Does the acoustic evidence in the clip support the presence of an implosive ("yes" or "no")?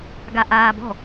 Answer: no